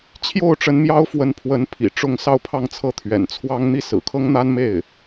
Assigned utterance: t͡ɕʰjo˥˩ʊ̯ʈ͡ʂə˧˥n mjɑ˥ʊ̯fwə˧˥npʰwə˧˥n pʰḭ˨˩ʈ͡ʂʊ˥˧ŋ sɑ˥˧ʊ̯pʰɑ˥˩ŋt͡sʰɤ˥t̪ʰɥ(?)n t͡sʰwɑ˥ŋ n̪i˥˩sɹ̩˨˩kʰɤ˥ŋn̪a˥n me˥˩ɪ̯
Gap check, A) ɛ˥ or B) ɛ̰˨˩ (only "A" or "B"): B